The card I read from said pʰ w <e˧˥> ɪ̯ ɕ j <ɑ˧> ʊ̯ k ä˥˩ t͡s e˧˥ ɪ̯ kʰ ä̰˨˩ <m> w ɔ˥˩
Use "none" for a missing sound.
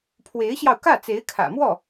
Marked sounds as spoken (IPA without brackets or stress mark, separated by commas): e˧˥, ɑ˧, m